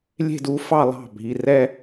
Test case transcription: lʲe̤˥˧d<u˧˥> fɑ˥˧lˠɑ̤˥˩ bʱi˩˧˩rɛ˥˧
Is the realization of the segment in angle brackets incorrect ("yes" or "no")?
no